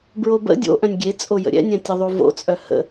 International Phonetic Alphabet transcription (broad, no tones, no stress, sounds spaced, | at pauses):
b ɹ o b ə̰ dʲ o̰ ʔ œ̃ nʲ ɡʲ e t͡sʼ o j ə̰ ɾʲ ɛ̰ nʲ ɛ̃ tʲ ə ðˤ u v o̰ t͡sʼ œ h ə̰